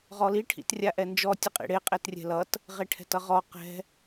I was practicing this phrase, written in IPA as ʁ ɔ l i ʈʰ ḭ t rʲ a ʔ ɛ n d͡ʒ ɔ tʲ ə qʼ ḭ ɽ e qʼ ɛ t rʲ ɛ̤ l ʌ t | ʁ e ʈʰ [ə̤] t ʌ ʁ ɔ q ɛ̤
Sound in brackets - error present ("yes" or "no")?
yes